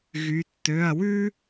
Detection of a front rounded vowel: present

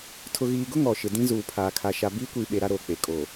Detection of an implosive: present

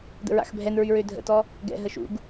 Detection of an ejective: absent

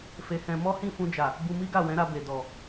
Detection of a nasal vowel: present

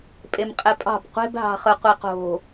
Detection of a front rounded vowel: absent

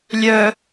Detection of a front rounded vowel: present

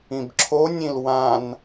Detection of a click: present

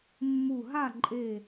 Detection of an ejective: present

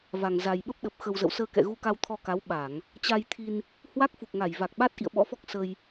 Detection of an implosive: present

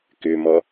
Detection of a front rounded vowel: present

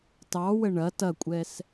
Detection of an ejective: present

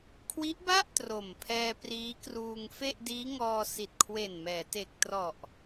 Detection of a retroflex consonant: absent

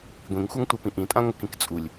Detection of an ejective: present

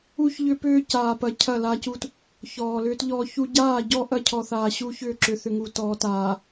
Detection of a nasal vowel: absent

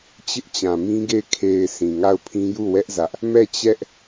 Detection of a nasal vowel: present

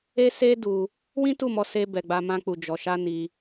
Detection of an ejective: absent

